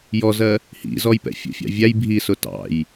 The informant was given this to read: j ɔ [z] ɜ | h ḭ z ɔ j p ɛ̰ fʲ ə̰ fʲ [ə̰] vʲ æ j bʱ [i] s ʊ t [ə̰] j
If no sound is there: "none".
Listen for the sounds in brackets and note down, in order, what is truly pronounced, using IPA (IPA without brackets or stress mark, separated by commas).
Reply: z, ɑ̰, i, ɑ̰